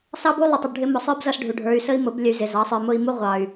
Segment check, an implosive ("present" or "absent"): absent